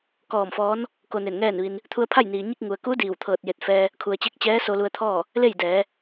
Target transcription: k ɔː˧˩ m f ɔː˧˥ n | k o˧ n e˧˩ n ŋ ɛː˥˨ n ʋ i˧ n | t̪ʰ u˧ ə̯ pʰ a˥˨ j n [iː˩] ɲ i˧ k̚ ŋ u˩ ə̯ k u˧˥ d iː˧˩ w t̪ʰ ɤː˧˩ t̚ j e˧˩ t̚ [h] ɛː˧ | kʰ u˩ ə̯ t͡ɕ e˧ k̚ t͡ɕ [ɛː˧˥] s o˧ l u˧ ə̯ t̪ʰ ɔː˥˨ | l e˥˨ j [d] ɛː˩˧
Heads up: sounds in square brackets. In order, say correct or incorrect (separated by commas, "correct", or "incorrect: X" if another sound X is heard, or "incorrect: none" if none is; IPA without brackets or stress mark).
correct, incorrect: f, correct, correct